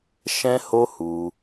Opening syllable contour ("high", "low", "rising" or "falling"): high